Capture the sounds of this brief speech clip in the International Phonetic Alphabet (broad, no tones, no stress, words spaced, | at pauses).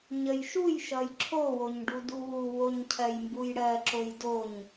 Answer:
ɲəjʃujʃʌj ǁʰowoɲ ɖuduwuwoɲ cʰɜjmbujɽɜǁoj doɲ